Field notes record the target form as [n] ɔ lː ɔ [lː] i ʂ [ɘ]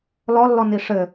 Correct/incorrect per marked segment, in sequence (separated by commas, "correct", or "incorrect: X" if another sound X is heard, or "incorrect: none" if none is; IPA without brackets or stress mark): incorrect: l, incorrect: n, correct